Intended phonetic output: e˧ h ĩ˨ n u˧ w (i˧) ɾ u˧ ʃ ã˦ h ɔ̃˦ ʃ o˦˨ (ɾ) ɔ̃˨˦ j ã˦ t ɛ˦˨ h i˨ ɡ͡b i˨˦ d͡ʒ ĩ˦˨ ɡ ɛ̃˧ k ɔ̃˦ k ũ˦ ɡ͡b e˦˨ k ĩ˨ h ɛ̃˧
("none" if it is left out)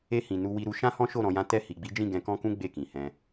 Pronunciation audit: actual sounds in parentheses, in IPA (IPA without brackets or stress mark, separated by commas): i˧, ɾ